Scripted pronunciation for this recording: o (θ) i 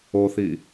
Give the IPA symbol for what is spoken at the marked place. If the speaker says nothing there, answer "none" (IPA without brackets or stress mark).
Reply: θ